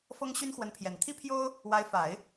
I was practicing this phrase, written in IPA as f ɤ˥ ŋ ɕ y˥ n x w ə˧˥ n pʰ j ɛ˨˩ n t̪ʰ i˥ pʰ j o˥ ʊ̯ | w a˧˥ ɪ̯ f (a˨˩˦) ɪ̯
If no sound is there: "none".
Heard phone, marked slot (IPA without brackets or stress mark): a˨˩˦